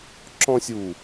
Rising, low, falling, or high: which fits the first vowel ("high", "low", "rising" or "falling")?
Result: high